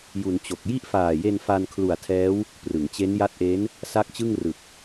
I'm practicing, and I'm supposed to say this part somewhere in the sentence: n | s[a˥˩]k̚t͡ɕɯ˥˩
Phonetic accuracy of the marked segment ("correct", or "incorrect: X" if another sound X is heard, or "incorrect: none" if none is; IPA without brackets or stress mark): correct